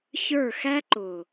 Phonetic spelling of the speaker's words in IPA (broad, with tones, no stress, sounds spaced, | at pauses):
ç ə˞˦˨ x æ˦ ǃ ʊ˨